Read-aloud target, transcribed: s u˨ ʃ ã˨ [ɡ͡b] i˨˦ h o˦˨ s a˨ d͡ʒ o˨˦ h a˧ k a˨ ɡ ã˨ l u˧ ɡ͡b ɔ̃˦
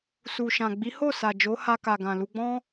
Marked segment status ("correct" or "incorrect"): correct